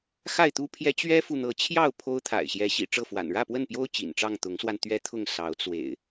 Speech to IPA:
xa˥˨ɪ̯t̪u˦pʰjɛ˦ t͡ɕɥɛ˦fu˨n̪ɤ˨˦ t͡ɕʰjɑ˥˨ʊ̯ pʰo˦ʊ̯ t̪ʰa̰˨˩ɪ̯ɕjɛ˨˦ɕḭ˨˩ ʈ͡ʂɤ˥˨fwa̰˨˩n ɻä˥˨pwə˥˨npjo˦ʊ̯ t͡ɕḭ˨˩nʈ͡ʂɑ˥˨ŋ t̪ʊ˨˦ŋswa˧n t̪ɥɛ˦t̪ʰʊ˥˨ŋ sɑ˨˦ʊ̯t͡swḛ˨˩ɪ̯

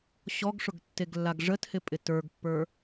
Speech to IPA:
ɕɔɡʂʊɡ tːeɡlːaɡʐəthɪ pʼɪtə˞ɡpːə˞

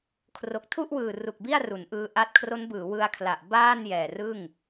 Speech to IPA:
kʰro˨˩k̚tʰu˥˩ʔwɯː˨˩ru˨˩k̚ bi˥˩a̯ru˩˦n ʔɯː˧ʔa˦˥t̚ kʰro˦˥nbɯː˩˦wɯ˧a̯kʰla˨˩ʔ baː˥˩n jɛː˨˩rɯ˥˩ŋ

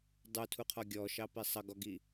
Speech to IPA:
dˤutʰuqʰɔ ɡʲɔʃɑpi sˤʌɡɔɡi

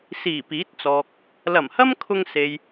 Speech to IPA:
siː˨˩piː˨˥t̚t͡sɔː˨k̚ | lɐ˨˩mhɐ˥mkʰʊ˧ŋ se˨j

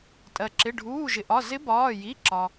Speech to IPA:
tʼɜ˩ǁɪ˩˧˩ ɖʱuː˩˧˩ʒɪ˩ʔɒ˩˧˩ zɪ˧˥bɒː˩˧˩ji˩˧˩ǁɒ˩

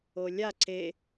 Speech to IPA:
olʲa ǀe

